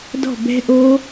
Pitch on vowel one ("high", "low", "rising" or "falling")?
falling